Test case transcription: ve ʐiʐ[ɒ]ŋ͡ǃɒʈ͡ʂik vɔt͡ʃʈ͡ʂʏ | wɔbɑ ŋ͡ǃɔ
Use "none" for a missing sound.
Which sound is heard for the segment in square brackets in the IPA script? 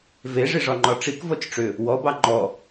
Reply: ɒ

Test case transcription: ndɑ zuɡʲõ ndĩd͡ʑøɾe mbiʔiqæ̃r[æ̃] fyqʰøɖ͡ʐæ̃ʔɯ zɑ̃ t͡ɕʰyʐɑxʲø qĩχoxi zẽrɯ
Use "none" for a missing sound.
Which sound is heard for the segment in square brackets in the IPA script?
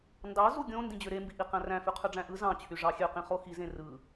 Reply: æ̃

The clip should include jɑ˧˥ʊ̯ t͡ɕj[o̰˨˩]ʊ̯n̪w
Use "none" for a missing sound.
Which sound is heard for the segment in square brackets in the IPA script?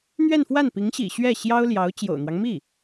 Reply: o̰˨˩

